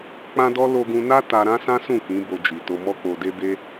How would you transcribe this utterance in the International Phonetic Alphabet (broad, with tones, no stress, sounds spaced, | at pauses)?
k͡p ã˦ d ɔ˦ l o˧ ɡ ũ˧ n a˦ t a˧ ɾ ã˦ s ã˦ s ũ˦˨ k ĩ˨˦ b o˧ d͡ʒ i˨ t o˨ m ɔ˧ k͡p o˨ d e˧ b e˦